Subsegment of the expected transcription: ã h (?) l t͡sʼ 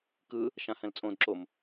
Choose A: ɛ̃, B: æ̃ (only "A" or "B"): A